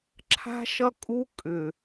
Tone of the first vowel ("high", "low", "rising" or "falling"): high